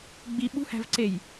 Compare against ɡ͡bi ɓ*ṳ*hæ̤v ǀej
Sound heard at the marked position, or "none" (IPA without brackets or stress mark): ṳ